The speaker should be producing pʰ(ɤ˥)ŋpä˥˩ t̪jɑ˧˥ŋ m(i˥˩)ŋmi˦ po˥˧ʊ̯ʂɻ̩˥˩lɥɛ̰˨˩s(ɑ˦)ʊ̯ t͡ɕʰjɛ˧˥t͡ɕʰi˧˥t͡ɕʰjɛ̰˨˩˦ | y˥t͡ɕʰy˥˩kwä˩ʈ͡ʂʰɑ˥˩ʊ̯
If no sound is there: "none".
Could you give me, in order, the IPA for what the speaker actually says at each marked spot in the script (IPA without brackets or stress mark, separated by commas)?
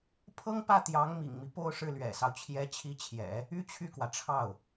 ɤ˥, ḭ˨˩, ɑ˦